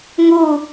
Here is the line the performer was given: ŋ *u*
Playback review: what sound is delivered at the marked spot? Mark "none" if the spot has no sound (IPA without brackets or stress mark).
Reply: u